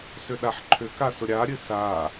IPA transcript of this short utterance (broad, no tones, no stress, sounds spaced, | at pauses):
s ʏ ɗ a ħ ǃʰ ʏ k a s ʊ ɾʲ a ɾʲ ɨ s a